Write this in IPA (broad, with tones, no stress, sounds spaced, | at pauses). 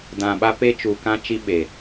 d ã˨ ɓ a˦ p e˦ t͡ʃ uː˨ k ã˦ t͡ʃ i˦ ɓ e˨